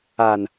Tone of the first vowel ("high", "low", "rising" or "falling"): low